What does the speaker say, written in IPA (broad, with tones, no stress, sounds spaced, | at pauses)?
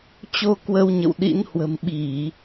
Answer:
t͡ɕ o˧ k w ə˧ w ɲ ə̰˧˨ w ɗ ḭ˧˥ n h w ə̤˨˩ m ɓ i˧˩˨